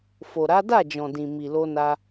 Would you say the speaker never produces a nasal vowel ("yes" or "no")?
no